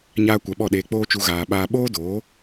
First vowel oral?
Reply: yes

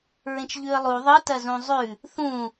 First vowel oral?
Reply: no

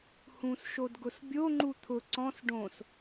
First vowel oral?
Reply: no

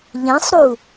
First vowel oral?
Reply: no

